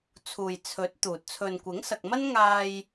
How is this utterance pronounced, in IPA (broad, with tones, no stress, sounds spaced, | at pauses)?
t͡sʰ uː˨ j t͡sʰ ɵ˨˥ t̚ t̪ uː˨ t̚ t͡sʰ ɵ˨ n kʷ ɪ˨˥ ŋ s ɐ˨ k̚ m ɐ˥ n ŋ aː˧ j